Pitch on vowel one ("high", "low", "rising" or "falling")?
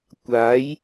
rising